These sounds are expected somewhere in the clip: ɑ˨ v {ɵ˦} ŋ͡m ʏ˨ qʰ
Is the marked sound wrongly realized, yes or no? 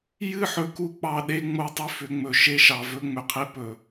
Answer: no